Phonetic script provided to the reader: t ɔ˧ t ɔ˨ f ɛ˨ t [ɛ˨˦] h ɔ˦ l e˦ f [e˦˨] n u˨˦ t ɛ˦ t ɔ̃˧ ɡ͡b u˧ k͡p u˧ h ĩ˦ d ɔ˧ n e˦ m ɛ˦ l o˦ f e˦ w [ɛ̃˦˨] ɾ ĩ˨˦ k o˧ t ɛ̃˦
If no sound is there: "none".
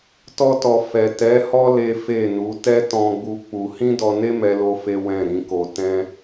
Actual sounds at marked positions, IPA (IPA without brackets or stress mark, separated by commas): ɛ˨˦, e˦˨, ɛ̃˦˨